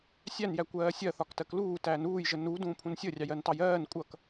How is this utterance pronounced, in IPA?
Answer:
sʲ æ n j æ kʷ ɜː sʲ ɜ θ ɒ k t ɜ k l uː t æː n uː j ʒ ə n u d ũː pʰ ũ n sʲ ə rʲ ɑ j ɜ n t ɑ j ɜː n kʷʼ ʌ k

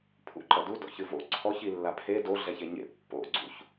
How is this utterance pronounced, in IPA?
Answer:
pʰ ṵ ǃ ɐ d u d ɔ̰ ç ɨ v o̰ ǀʰ ɔ ç i lː a pʰ e d o ɮ ɛ ç e ɲ ḛ pː o̰ ɡ͡ǀ ṵ ç

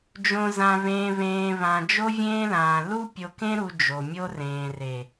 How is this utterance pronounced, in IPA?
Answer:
d͡ʒ õ˨ z ã˨ β ẽː˨ β ẽː˨ β ã˨ d͡ʒ o˦ vʲ ẽː˦ l ãː˨ l u˦ pʲ o˨ k ẽ˦ ɾ u˨ d͡ʒ o˨ mʲ o˦ r ẽː˨ r e˨

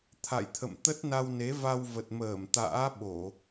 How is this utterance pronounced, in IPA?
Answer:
t̪ʰ a̰˧˨ j t̪ʰ ə̰˧˨ m t̪ ə˦˥ t̚ n a˧ w n e˨˦ v a˧ w v ə˨˩ t̚ m əː˧˩ m t̪ a̰ː˧˥ ɓ o˧˩˨

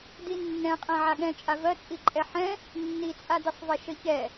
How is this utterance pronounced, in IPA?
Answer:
d i nː ɛ̃ qʼ ɛ̃ ʕ a ɠ ɛ̃ t͡ʃʼ a v ɜ t͡sʼ i ǃʼ ɛ ħ ɛ̃ | nː i t͡sʼ a d i sˤ v ɛ ʃ ə ç ɛ

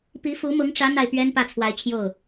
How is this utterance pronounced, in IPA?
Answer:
p i˧˥ f u˧˥ m ʊ˧˥ ŋ ʈ͡ʂ ä˧˥ n̪ a˥˩ ɪ̯ p ɥ ɛ˥ n p ä˥˩ t͡sʰ w a˧˥ ɪ̯ t͡ɕʰ j o˥˩ ʊ̯

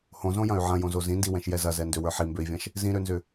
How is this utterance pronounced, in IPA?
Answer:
h õ z õ j ɐ̃ y̯ ʕ ɐ̃ j õ z o z ĩ n d i w ɛ̃ ʃ j ɛ z ɐ z ɛ n d ø w ə˞ ħ i m b ø i̯ vʲ ɐ̃ ʃ | z ĩ ɾ ø n z ʏ

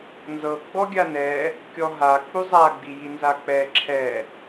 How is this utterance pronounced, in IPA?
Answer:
n z ɤ ɡ͡b ɔ ɡʲ a n ɛ | kʲ ɔ ɦ a k͡p u zˤ a ɡ͡b i j i n z a k͡p ɛ ǁʰ ɛ

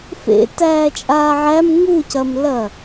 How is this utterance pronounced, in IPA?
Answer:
f ḛ t æː t͡ʃʼ aː ʕ æ m ŋ u c ɐ m l ɐ

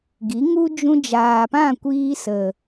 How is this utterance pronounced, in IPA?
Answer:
ɡ i˨˦ ŋ u˦ d͡ʒ ũ˧ d͡ʒ aː˨ p ã˦˨ kʷ iː˧ s ə˨

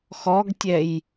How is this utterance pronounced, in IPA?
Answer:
x ɔ ɡ tʲ ɛ j

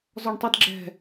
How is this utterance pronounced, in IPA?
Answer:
z ɔ ɳ tˤ i d ɡ͡ǁ ɛ̤

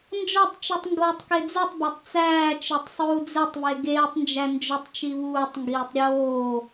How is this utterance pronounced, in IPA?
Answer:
n d͡ʒ ɒ tˤ t͡ʃ u tˤ ŋ ɡ oː tˤ k e d͡z u tˤ b æ tˤ t͡s æː t͡ʃ e tˤ sˤ uː d͡z e tˤ β e ɡ eː tˤ n d͡ʒ æ n d͡ʒ o tˤ t͡ʃ i β uː tˤ ŋ ɡ iː tˤ ɾʲ oː

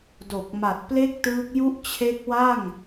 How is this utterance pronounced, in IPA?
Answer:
d o˨˩ k̚ m a˨˩ t̚ p l e˥˩ k̚ t ɯː˦˥ k̚ j u˥˩ ʔ t͡ɕʰ e˦˥ k̚ w a˥˩ ŋ

